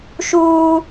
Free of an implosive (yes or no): yes